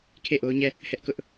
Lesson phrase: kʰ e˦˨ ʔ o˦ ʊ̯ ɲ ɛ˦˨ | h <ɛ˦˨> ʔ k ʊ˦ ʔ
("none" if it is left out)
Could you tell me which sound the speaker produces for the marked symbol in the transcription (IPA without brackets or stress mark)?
ɛ˦